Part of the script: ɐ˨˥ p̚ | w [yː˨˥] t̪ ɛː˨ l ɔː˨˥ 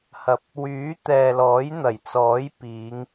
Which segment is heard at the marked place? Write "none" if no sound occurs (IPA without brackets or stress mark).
yː˨˥